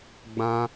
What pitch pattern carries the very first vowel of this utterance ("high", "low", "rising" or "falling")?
high